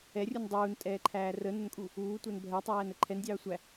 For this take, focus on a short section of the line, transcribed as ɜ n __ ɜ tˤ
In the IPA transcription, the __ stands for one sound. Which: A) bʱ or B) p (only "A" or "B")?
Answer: A